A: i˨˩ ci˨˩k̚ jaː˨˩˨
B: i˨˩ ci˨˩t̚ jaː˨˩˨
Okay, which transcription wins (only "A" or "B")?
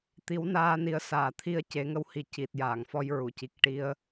B